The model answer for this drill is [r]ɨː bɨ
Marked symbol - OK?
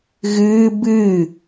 no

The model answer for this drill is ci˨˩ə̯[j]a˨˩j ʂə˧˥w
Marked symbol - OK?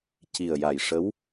yes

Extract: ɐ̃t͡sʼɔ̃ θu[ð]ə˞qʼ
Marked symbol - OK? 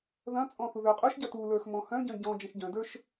yes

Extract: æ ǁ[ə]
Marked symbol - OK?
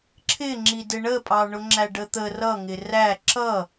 no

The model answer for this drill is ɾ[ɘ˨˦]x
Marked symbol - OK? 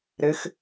yes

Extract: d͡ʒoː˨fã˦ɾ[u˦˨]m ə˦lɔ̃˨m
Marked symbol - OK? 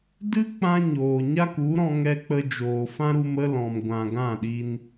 no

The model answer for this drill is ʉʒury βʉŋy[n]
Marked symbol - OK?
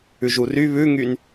yes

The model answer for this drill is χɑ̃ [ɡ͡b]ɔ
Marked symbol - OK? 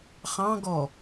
no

